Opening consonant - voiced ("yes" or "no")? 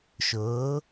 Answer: no